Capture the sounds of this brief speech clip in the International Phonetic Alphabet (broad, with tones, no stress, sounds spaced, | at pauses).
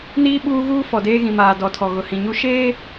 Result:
n iː˦ ɓ uː˦ ɣ uː˦ f ɔ˨ d eː˦ ɣ ĩ˨ m aː˨ d ɔ˨ tʰ ɔ˨ ɣ ʊ˨ h ĩ˨ ɲ u˦ ʃ eː˦